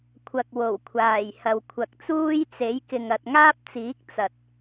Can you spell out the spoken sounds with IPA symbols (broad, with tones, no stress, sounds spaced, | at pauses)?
kʷʰ ɐ˨ k̚ w o˨˩ w kʷʰ aː˨˩ j h ɐ˨ w kʷʰ ɐ˨ k̚ t͡s uː˥ j t͡s e˨˥ j k ɪ˨ ŋ ɐ˨ t̚ ŋ aː˥ p̚ t͡s iː˨˥ k̚ t͡s ɐ˨ t̚